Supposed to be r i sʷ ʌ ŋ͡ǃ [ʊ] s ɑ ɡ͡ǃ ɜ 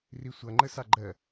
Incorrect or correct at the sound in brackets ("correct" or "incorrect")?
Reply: incorrect